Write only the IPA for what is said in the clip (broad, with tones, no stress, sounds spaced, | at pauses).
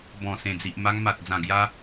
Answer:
b ɔ̃˨˩ s ẽ˨˩ d͡z i˨ ʔ m a˧ ŋ m a˨ t̚ d͡z ã˨˩ ɡ j a˧